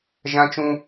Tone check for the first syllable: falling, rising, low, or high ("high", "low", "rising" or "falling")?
high